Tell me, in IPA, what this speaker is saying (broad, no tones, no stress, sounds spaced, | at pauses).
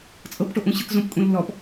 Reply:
t͡sʼ ɤ p ʈ o ʔ ũ ɕ ɯ k z õ p kʼ ũ lː ɔ p